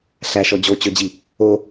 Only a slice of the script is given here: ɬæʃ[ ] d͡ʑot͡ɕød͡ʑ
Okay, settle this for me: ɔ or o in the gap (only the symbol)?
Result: ɔ